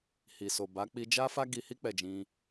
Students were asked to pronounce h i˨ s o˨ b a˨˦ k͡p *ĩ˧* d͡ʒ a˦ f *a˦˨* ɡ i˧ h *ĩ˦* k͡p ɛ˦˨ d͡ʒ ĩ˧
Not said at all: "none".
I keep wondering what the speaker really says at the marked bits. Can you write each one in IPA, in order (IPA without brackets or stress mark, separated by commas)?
i˧, a˦, i˦